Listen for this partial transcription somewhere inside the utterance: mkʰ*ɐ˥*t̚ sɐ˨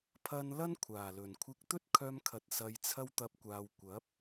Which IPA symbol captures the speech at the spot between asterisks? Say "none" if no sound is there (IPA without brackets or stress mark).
ɐ˨